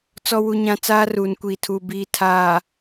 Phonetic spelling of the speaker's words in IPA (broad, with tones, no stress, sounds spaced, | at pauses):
t͡s ɔ˨ w u˨ ɲ ã˨ t͡s aː˦ r uː˨ n kʷ iː˨ tʰ uː˨ b iː˨ tʰ aː˨